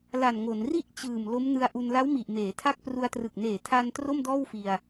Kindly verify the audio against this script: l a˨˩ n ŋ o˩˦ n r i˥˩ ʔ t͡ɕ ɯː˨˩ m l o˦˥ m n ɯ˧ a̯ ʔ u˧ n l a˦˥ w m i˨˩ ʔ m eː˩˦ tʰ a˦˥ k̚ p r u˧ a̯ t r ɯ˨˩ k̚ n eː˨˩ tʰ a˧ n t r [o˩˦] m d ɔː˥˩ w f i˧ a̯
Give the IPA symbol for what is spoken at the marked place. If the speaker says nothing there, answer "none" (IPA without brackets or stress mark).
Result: o˥˩